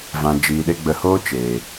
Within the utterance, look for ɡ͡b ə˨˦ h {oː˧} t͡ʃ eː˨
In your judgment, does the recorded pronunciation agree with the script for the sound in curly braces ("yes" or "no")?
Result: no